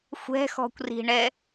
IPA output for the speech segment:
xʷ ɛ̤ x ɔ̤ kʷ r i̤ ɳ ɛ

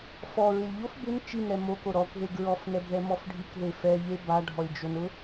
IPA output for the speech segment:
f ɔ ɹ ɪ lʲ ʎ o f b ɪ n t͡ʃ i n ɾ ɛ m o k o ɾ ɔ k ð e ɡ ɹ ɔ f n ɛ b ð ɛ m ɔ f ɖʱ i k ð e f ɛ ʎ e b a ɖʱ ɔ lʲ d͡ʒ o n ʊ

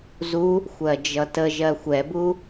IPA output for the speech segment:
z u | xʷ ɜ d͡ʒ ʌ t ə ʒ ɜ xʷ ɛ b u

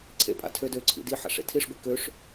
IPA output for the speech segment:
ǀʰ ḛ pʼ a̰ tʰ ø d ø ǀʰ ḭ d i ħ a̰ ʂ ḛ tʰ i ʂ ɡʷ i k ø ʂ

